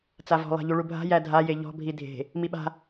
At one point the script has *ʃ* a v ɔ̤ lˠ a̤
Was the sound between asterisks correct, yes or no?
no